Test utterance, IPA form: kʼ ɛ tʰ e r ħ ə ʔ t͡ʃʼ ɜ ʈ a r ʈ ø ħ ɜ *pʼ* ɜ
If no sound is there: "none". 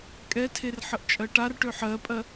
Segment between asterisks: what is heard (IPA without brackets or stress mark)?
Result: pʼ